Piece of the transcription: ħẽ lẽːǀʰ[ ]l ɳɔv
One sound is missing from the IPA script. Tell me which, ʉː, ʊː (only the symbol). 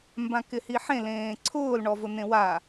ʊː